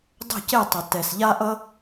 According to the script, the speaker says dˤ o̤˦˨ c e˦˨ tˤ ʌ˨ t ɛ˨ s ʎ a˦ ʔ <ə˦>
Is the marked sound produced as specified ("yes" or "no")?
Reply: no